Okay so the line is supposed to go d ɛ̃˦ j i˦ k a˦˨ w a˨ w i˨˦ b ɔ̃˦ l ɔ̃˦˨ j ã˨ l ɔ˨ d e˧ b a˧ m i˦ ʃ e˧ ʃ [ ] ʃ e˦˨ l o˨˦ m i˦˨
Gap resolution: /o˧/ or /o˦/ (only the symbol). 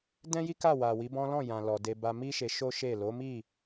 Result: o˦